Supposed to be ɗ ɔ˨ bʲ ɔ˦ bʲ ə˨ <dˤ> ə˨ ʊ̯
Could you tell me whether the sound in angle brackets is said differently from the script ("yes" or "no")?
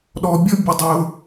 no